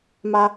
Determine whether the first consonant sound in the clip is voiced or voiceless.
voiced